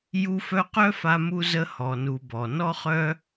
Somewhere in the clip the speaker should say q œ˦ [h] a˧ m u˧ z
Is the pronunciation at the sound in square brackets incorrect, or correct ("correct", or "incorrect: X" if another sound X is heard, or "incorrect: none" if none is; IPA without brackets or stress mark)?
incorrect: f